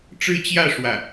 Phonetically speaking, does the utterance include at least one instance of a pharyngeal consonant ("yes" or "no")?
no